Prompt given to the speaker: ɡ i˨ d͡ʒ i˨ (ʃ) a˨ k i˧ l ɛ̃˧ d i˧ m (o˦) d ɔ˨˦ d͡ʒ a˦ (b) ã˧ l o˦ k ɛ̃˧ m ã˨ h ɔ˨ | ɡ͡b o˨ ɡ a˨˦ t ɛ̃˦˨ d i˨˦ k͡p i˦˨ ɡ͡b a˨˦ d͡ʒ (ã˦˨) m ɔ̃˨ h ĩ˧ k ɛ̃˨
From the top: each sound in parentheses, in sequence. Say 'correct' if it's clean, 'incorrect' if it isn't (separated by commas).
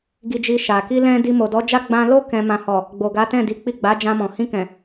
correct, incorrect, incorrect, incorrect